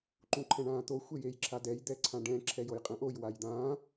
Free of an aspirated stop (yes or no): no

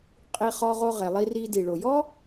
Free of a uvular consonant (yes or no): no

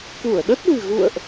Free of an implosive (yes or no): no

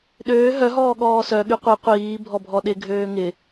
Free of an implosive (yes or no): no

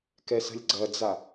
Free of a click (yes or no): no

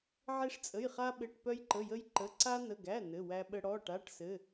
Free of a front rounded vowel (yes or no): no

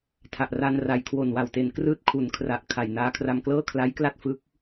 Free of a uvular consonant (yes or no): yes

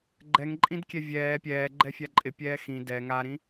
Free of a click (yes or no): no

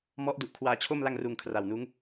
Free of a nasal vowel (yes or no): yes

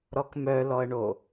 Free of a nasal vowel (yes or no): yes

